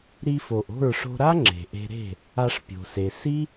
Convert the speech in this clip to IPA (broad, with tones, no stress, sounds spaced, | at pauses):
ɾ i˧ f o˨ ʔ o̤˦˨ ɹ ʂ o̤˧ ɾ a˦ ŋ͡ǁ e̤˨ ʔ e̤˧ ɾ e̤˦˨ | a˧ ʂ pʲ o̤˨ s e˨ s i˦